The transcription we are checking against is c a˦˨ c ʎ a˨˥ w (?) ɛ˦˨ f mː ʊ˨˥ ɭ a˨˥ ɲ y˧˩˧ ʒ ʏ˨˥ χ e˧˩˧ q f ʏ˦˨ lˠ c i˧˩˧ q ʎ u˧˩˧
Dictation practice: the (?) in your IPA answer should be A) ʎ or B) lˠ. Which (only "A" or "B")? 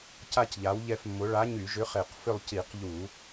A